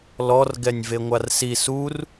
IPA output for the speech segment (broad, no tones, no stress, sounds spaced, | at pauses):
l ɔ r ɡ ɛ nʲ v e ŋʷ a r s i s u r